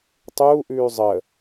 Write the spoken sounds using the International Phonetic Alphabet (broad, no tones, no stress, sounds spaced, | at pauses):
tˤ uː ʔ ʉː zˤ ə